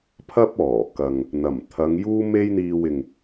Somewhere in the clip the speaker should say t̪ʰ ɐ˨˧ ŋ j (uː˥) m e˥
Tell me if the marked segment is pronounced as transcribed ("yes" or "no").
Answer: yes